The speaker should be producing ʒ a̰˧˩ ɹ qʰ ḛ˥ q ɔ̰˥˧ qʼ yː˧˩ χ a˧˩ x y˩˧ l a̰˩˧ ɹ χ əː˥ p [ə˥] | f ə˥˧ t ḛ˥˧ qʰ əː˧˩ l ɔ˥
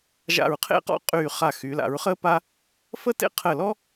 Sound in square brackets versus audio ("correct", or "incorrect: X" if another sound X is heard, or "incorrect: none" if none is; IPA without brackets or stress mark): incorrect: a˥